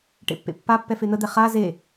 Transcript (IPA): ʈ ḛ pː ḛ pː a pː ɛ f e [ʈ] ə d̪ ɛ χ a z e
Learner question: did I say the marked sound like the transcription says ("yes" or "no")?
no